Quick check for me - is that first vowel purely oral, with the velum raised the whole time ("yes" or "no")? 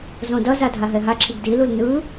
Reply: no